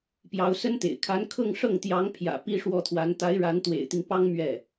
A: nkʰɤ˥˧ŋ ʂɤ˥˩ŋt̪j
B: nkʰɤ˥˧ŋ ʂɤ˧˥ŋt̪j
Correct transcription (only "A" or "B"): A